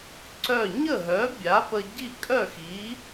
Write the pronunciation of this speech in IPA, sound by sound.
ǀ œ˥˨ ɲ ə˥˨ ɦ œ˨˥ bʲ a˨˥ p ə˧ ɟ i˥˨ kʼ œ˥˨ x i˨˥

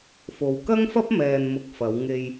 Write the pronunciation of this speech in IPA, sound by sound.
f o˨ w k ɐ˥ ŋ f ɐ˥ p̚ m ɛː˨ n m ʊ˨ k̚ f ɐ˨˧ w ŋ e˨ j

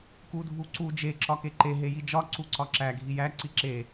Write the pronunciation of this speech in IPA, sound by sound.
k u dʱ u ǀ u d͡ʒ e ǁ ɒ k e ǃ e ɦ e j i d͡ʒ ɒ ǀ u ǀ ɒ ǁ æ ɡʱ i j æ ǀ i ǁ e

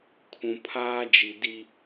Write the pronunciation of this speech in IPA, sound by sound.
kʰ ũ˨ pʰ aː˦ d͡ʒ i˨ d i˦

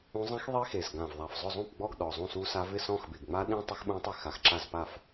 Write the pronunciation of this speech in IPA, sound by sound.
ũ˦˥ zˤ ĩ˦˥ x ðˤ i˦˥ x e˨˩ z ɡ ã˨˩ v ðˤ a˨˩ f zˤ ʊ˥˩ zˤ ũ˥˩ p ɡ͡b ɔ˥˩ ɡ ɗ ɔ˨˩ zˤ ũ˥˩ s u˦˥ s a˦˥ v ɪ˥˩ s ɔ̃˥˩ x b ɪ˨˩ ɡ ŋ͡m a˦˥ ɗ ĩ˦˥ tˤ ɪ˦˥ x ɓ ũ˦˥ tˤ i˥˩ x a˨˩ x ǁ a˥˩ z p a˥˩ f

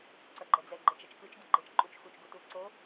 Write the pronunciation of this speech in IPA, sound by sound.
ǀ ʌ ɡ͡ǃ ɛ d͡z ɛ ɡ͡ǃ ɛ t͡ʃ ʌ t͡ʃ k ɯ t͡ʃ ɡ i ɡ͡ǃ e t͡ʃ ǃʼ u t͡ʃ x u t͡ʃ ɡ u t u ǀ o

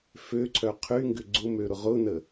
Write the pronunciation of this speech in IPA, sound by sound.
f ø ǀʰ œ qʰ y ŋ ɡ ʏ ɡ͡ǀ ʊ m ø ɾ ʊ ʁ ʊ n ə

